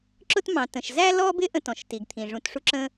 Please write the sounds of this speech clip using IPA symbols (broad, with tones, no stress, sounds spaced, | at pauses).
ǁ ʊ˥ t m ɑ̃˩ t ə̃˩ ʃ z æ˥ l ɔ˥ b ɪ˥ ʔ ə̃˥ t ɔ̃˩ ʃ t i˩ ɡ t̪ʰ ĩ˩ ʐ ũ˩ t ʂ u˥ ǁ ə̃˥